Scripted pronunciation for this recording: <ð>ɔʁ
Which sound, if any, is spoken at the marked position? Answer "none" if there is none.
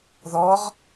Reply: ð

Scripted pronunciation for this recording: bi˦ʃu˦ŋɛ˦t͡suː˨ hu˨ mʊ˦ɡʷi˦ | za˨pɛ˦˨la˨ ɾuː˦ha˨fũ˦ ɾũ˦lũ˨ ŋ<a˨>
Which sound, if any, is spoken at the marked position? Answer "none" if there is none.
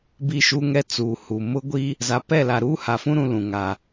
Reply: a˨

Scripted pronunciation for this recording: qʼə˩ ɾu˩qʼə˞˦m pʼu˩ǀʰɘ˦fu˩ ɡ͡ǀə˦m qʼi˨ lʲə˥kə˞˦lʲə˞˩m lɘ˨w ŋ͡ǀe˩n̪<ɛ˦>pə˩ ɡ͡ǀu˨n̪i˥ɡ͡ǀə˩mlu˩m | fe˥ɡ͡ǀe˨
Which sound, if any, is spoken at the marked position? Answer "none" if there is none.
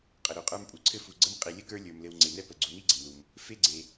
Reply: ɛ˦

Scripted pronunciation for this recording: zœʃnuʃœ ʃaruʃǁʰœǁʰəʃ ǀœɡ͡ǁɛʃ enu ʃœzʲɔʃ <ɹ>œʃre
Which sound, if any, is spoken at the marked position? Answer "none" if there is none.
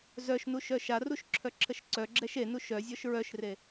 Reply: ɹ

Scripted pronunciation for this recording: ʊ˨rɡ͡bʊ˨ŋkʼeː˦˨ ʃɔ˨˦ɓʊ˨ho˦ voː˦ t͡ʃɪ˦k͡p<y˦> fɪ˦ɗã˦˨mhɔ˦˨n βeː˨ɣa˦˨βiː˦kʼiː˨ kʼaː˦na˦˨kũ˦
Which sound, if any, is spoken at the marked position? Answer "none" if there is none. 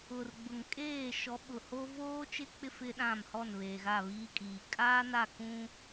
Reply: ɪ˦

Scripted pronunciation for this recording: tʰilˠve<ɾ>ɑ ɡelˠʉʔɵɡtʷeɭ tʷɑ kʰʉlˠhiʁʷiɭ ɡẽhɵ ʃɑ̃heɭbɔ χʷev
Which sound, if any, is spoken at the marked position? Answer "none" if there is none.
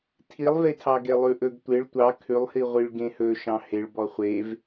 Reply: tʰ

